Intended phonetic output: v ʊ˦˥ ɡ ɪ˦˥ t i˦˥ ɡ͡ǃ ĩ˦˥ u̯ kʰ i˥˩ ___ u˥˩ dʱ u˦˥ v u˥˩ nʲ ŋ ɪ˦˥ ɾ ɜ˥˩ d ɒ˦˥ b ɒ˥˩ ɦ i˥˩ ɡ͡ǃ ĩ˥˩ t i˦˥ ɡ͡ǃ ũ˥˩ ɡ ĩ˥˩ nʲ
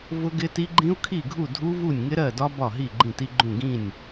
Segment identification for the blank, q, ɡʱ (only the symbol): ɡʱ